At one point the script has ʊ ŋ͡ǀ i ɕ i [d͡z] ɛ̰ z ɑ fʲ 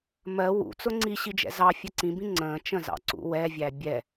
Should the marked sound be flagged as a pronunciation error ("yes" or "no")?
yes